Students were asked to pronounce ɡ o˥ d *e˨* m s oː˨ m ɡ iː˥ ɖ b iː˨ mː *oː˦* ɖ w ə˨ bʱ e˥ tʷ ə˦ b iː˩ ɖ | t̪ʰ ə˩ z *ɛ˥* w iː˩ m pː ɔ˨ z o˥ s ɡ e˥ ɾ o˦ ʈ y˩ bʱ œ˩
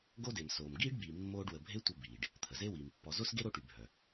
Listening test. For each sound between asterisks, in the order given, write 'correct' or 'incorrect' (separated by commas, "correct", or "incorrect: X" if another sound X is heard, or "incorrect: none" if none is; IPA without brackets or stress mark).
correct, correct, incorrect: e˥